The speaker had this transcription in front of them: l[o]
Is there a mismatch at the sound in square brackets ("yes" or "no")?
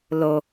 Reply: no